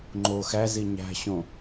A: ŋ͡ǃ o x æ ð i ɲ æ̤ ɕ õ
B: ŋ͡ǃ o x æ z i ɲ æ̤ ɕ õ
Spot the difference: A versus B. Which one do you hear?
B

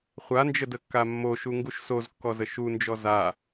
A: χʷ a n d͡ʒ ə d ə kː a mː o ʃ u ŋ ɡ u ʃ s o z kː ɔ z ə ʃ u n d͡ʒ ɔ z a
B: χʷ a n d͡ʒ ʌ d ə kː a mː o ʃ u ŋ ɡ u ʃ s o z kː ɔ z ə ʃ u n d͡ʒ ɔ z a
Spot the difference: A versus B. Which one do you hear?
A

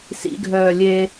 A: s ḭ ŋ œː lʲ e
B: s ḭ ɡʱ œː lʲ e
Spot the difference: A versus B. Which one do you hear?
B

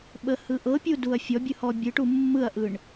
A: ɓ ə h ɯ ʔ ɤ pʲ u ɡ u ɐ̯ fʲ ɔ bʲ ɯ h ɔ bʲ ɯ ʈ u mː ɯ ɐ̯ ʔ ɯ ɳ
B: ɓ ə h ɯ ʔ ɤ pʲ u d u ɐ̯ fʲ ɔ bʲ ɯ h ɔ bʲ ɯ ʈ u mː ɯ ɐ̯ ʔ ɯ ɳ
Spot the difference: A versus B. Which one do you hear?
B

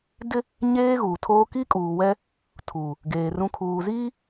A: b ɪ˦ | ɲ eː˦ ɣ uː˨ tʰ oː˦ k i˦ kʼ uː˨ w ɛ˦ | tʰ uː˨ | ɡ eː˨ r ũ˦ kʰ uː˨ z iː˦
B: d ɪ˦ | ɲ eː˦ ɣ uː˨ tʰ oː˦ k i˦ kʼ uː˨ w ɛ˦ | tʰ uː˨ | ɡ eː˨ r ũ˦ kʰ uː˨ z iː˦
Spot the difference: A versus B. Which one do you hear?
B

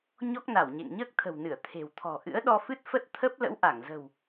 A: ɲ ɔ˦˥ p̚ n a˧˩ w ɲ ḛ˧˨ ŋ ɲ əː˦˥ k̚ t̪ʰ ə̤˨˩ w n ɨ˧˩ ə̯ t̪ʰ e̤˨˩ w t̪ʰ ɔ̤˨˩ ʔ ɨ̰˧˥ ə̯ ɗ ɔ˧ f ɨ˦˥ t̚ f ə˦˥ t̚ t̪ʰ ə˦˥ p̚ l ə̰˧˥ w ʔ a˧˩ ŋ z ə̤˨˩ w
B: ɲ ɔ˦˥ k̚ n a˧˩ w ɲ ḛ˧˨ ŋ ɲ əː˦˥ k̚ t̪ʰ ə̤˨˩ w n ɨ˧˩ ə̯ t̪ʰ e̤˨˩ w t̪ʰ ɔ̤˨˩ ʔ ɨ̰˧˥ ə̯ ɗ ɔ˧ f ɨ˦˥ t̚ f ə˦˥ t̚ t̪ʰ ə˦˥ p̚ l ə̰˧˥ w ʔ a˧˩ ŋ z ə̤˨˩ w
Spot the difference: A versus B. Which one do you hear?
B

